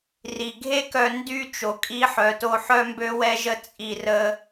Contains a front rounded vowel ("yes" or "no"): yes